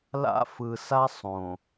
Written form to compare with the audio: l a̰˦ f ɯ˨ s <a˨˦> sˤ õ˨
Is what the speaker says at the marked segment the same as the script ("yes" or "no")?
no